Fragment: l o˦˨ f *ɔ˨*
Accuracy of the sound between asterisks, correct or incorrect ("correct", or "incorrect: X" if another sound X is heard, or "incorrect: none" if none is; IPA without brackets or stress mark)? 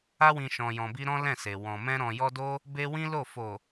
incorrect: o˨